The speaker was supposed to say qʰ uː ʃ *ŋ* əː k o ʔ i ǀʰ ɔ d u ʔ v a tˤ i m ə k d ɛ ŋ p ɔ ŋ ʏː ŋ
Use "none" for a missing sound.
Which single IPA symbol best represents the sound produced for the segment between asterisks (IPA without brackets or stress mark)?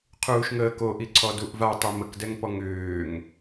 ŋ